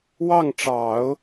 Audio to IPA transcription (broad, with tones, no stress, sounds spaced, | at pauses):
w ɑ˥˩ ŋ ʈ͡ʂ ɑ˨˩˦ ʊ̯